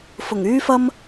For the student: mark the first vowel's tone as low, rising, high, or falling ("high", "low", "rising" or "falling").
low